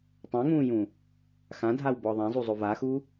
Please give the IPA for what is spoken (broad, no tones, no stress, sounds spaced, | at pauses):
tˤ ã ŋ ũː j ũ | x ã dʱ a w b ɔ ðˤ ã zˤ u zˤ o v a x u